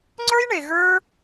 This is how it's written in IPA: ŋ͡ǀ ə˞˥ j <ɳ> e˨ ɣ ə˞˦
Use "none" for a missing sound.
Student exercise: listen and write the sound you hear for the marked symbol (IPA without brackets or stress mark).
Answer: ɳ